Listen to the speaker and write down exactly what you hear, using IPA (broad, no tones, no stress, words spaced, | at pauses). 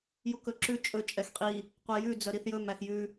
jukɵǁʉ t͡ʃʼɵ t͡ʃʼɛxqʼi | qʷɛjʉ d͡zœɾiθjɵm æxjʉ